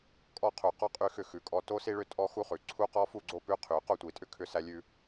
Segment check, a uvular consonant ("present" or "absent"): present